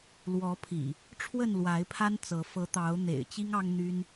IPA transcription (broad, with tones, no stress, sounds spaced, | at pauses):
l w ɔ˨˦ pʰ ḭ˨˩ | ʈ͡ʂʰ w ə˥˨ n l w a˨˦ ɪ̯ pʰ a˦ n t͡s ɤ˨˦ f ɤ˨˦ t̪ ɑ˨˦ ʊ̯ n̪ ḛ˨˩ ɪ̯ t͡ɕ i˦ ŋ ɑ˦ ŋ n̪ y˦ n